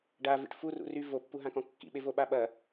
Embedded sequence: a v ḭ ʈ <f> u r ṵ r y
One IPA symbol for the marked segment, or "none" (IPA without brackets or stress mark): f